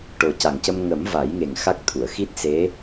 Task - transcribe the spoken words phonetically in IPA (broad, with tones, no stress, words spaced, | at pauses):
ʈo˨˩ca˨˩ŋcə˧m ŋə˨˩˦m va˨˩˦jŋe˨˩ŋ xa˦˥k̚t̪ʰu˨˩˨ə̯ xi˦˥t̚se˧˥